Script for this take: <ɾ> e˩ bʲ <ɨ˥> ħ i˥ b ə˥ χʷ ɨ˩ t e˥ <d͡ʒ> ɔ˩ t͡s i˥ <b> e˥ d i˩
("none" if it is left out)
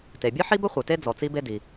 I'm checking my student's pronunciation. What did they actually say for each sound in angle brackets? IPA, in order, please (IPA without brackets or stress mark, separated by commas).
t, ɨ˥, d͡z, b